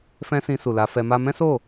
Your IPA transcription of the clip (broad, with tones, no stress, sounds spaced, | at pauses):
f ɛ̃˧ s ĩ˧ s u˨ l a˨˦ f ɛ˧ m a˦ m ɛ̃˦ s o˦˨